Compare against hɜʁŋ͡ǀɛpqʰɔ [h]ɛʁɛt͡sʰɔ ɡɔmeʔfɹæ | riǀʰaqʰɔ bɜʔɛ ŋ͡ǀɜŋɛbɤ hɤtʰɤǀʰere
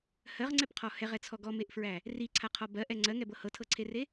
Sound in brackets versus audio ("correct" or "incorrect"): correct